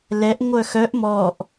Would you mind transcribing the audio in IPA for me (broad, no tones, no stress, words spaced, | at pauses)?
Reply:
lɛʔ ŋʷœxœʔ mɔʔ